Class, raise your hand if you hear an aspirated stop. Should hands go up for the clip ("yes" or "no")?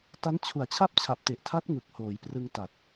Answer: yes